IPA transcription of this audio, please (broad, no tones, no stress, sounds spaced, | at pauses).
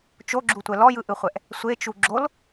t͡ʃ o ɡ͡ǁ u tʷ ɛ l ɔ j ɯ ʔ ɯ χʷ ɛ ʔ | sʷ e t͡ʃ u ɡ͡ǁ o l